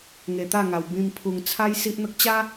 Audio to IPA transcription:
ŋ e˧ t̪ a˥˧ ŋ a˧ w b ĩ˧ m pʰ u˧ ŋ t͡sʰ a˦ j s i˦ ʔ n̪ ə˦ k̚ t͡ɕ a˦

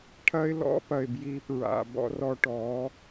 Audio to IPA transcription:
ʈʰ ɐ˦ ɪ̯ l ɔ̰˦ p ɐ˨ ɪ̯ b j i˧ p ɹ a̰˨ b ɔ̰˦ r ɔ˧ ʈ ɔ˨˦

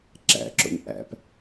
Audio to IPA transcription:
ǁ æ̰ ǁ o̰ ɲ ʔ æ̰ p

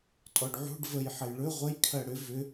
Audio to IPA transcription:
tʼ ɔ ɖ ʕ ṳ ɖ v ə j ħ ə j ɭ ɵ ʁʷ ə j kʰ ɜ ɽ ʏ v ʏ

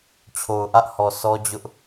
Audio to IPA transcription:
t͡ɕʰ o˨ ʊ̯ ʔ ä˦ ʔ h ɔ˨ s ɔ˦ d͡ʑ ʊ˦ ʔ

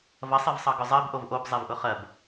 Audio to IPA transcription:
v ɐ sˤ e v sˤ ɑ ɡ ʊ zˤ ɜ b ʔ o v ʔ o b zˤ e v ʔ ʊ χ ɜ b

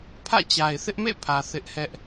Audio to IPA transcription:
pʰ ä̰˦˨ t͡ɕ a˨ ɪ̯ θ ɪ˦ ʔ m ḛ˦˨ pʰ ä˨ θ ɪ˦ ʔ h ɛ˦ ʔ

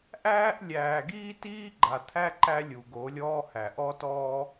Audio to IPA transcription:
ʔ æː˦ ʔ lʲ æː˨ ɡ iː˦ t iː˦ ɡ͡ǃ a˨ t̪ʰ æ˦ ǃ æ˦ lʲ u˨ ɡ o˨˦ lʲ ɔː˦ h æ˨ ʔ ɔ˦ t ɔː˦

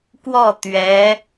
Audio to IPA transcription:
k w ɔ˥˩ t̪ ɥ ɛ˧˥

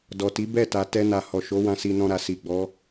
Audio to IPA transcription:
d ɔ˨ t i˨˦ b ɛ˦˨ t a˨ t ɛ˧ n a˨ h ɔ˨ ʃ o˨˦ w ã˧ s i˧ n ɔ̃˧ ɾ a˨ s i˨ ɡ͡b ɔ˨˦

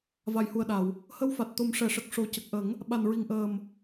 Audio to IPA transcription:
v a˨˩ j h u˨˩ ə̯ ɗ a˨˩˨ w | h ə˧˥ w f a˨˩ t̚ t̪ o˨˩˦ m ʂ ɛ˨˩˨ ʂ ə˨˩ k̚ ʂ o˨˩˨ c ə˨˩ k̚ ʔ ə˨˩˦ ŋ | ɓ a˨˩ n ɹ i˨˩ ŋ ʔ əː˨˩ m

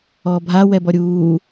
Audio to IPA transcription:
ɔː bʱ a w ɛ b ɔ ɾʲ uː

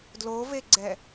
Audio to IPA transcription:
d l o v e ɡ͡ǀ ɛ

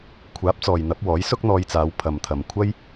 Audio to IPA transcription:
kʷʰ aː˨˥ p̚ t͡s ɔː˨ j n̪ ɐ˨˥ p̚ w ɔː˨˥ j s ʊ˥ k̚ n̪ ɔː˧ j t͡s aː˨˧ w pʰ ɐ˨ m t̪ʰ ɐ˨ m kʷʰ ɐ˥ j

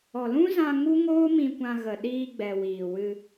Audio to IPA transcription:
ɔ˨ l ũ˦ z ã˧ ŋ u˦ ŋ oː˦ m ĩ˧ kʷ ã˧ ɣ ə˨ ɗ iː˧ ɡ͡b ɛ˨ w iː˨ w ɨ˧

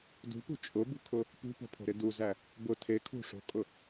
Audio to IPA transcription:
d ṳ p ṳ t͡ʃʼ ʊ b ṳ kʰ ʊ | p ṳ p o̤ pʰ o̤ ɾ ɪ d u z æ | b ʊ tʰ e kʰ ṳ ʂ o̤ kʼ ʊ

